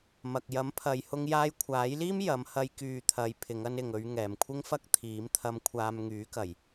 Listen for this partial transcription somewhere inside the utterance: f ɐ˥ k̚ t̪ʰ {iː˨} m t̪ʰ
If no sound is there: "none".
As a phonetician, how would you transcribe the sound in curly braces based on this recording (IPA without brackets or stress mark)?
iː˨˥